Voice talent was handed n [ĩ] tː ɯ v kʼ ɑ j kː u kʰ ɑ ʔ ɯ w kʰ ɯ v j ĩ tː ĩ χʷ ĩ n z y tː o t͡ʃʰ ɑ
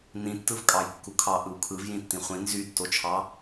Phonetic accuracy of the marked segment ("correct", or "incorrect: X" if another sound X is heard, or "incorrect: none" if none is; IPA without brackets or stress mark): correct